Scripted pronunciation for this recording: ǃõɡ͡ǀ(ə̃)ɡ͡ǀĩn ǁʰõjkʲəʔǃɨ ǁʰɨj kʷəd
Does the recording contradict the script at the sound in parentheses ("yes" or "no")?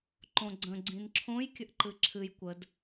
no